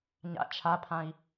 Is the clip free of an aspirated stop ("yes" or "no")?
no